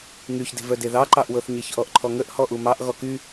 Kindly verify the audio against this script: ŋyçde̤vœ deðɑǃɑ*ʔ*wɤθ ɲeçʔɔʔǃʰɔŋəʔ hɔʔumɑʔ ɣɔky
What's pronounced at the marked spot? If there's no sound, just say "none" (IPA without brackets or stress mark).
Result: ʔ